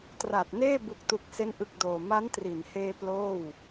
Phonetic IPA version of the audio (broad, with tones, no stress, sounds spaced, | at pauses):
t r a˨˩ t̚ n eː˥˩ b u˨˩ k̚ t u˨˩ k̚ s e˦˥ n ʔ ɯ˨˩ k̚ d oː˨˩ m a˦˥ n t r i˩˦ n h eː˧ p l oː˥˩ w